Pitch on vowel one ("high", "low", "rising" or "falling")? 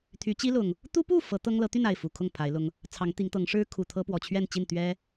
rising